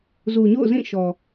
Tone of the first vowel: low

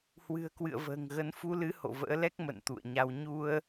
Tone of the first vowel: low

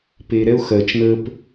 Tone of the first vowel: high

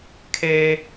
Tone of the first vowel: high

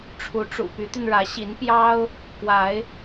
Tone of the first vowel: rising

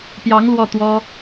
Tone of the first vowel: rising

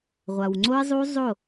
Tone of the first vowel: low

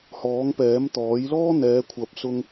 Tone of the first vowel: rising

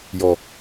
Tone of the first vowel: low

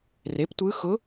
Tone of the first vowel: rising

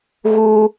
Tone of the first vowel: high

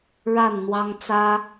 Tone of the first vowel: falling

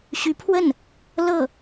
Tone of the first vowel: rising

